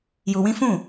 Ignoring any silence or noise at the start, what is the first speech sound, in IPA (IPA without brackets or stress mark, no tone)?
j